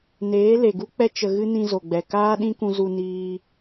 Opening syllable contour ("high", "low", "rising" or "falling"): rising